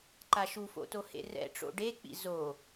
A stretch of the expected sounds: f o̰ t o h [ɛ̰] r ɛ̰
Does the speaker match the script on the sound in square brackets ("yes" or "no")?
no